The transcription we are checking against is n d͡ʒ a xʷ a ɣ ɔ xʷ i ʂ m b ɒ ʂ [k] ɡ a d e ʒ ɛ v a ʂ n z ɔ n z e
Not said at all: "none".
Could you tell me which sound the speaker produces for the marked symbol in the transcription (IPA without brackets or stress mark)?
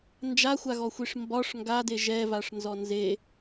ŋ